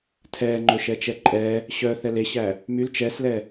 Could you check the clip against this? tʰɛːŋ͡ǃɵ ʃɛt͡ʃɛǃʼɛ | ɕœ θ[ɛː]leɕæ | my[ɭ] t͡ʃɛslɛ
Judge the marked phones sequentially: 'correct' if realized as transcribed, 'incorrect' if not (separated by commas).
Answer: incorrect, incorrect